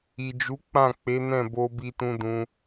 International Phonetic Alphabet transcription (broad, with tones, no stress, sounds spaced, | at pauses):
i˨ d͡ʒ u˨˦ k͡p ã˦˨ k͡p e˨˦ n ɛ̃˦˨ b o˧ b i˧ t ũ˧ d ũ˧